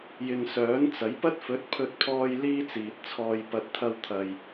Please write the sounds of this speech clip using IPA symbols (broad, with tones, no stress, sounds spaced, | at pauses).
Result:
j ɪ˨ ŋ s œː˨˥ n t͡s ɐ˨˥ j p ɐ˥ t̚ f ɵ˨˥ t̚ pʰ ɵ˧ t̚ pʰ ɔː˧ j l iː˥ t͡s iː˨ t̚ t͡sʰ ɔː˧ j p ɐ˨ t̚ t̪ʰ ɐ˧ w t̪ʰ ɐ˧ j